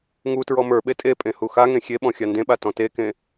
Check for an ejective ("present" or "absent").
present